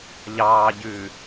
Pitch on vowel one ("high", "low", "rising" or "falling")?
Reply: low